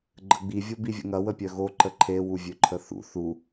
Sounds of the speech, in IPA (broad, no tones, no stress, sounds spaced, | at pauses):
ɡ͡ǃ ə ɡ͡b i vʲ o b i vʲ ə̰ ŋ ɐ w ə pʲ œ ɣ o ǃ ə ǃʰ e w u vʲ ø ǃʰ ə θ ṵ θ u